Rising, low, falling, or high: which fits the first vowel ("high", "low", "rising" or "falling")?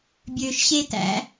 low